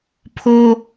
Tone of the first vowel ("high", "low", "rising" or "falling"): high